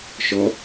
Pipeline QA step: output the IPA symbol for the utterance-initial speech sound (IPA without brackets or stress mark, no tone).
ʃ